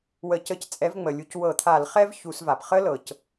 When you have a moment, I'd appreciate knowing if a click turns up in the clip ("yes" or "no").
no